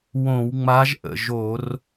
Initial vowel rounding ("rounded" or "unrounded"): rounded